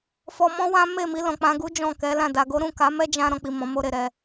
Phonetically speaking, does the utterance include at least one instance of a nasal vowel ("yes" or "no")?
yes